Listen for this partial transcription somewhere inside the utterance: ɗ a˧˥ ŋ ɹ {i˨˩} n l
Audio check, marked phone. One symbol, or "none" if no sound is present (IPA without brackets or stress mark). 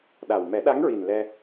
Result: i˨˩